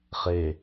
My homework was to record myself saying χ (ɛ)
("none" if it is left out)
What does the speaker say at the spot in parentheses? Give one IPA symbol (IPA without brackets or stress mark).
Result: e